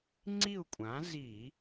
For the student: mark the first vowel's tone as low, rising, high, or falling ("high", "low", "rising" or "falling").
falling